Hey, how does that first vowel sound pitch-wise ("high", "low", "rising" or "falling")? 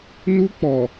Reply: high